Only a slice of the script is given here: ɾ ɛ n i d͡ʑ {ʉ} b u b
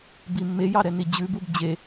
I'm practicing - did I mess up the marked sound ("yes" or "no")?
no